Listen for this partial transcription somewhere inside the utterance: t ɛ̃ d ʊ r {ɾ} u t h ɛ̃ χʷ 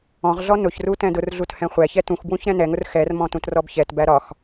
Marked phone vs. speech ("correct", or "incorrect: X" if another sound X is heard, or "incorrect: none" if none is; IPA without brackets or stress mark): incorrect: ɮ